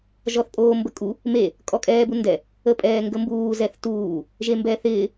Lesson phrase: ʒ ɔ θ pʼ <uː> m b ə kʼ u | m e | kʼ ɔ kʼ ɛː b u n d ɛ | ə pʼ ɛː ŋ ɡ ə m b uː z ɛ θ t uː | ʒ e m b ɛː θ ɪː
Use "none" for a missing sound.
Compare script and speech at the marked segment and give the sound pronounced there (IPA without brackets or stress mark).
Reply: oː